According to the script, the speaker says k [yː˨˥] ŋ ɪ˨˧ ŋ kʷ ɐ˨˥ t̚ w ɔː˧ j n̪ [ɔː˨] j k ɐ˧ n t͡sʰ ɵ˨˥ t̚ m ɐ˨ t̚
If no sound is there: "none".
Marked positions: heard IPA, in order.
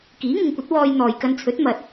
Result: iː˨˥, ɔː˨

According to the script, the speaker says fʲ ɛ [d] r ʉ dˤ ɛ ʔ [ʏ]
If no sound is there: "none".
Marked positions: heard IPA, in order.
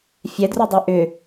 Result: d, ʏ

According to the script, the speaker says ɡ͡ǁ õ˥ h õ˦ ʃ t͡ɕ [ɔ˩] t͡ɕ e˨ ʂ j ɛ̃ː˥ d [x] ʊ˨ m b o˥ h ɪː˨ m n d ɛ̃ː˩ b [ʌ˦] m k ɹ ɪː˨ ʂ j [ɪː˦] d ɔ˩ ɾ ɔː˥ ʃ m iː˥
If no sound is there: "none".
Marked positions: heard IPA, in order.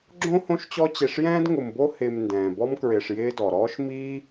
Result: ɔ˦, ŋ, ɔ˦, ɪː˦

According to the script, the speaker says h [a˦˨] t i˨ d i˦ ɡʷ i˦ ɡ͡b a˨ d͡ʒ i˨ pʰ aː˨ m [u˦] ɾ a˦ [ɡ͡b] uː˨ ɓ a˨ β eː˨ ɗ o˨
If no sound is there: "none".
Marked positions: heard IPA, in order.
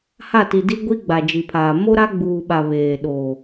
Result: a˦˨, o˦, ɡ͡b

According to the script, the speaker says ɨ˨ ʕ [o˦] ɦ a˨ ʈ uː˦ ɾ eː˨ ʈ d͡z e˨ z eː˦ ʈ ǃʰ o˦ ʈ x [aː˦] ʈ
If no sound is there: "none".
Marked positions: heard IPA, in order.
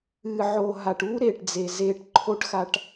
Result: o˨, a˦

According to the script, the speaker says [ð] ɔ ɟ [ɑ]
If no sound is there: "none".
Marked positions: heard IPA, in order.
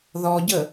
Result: ð, ə

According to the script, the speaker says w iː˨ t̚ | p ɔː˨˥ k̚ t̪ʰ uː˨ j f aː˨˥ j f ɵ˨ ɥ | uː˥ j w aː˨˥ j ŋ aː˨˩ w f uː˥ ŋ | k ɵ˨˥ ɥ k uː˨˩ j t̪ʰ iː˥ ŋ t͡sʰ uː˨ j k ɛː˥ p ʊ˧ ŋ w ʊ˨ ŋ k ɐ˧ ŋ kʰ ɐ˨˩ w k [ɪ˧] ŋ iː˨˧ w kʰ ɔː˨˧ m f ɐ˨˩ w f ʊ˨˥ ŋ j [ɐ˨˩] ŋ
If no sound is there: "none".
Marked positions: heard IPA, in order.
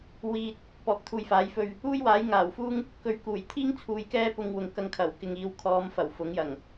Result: ɪ˨, ɐ˨˩

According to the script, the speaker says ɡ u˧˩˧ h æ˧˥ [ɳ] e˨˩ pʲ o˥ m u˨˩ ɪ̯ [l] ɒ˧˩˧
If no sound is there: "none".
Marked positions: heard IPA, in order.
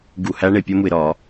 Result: ɳ, ɾ

